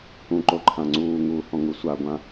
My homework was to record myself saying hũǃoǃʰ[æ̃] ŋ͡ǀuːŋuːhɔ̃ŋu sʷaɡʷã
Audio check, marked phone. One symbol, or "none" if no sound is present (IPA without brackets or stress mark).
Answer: ã